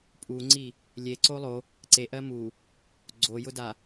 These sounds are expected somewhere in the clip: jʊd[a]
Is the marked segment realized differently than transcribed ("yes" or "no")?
no